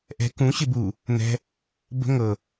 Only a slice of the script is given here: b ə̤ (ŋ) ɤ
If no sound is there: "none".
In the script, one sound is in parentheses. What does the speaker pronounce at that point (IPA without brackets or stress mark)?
ŋ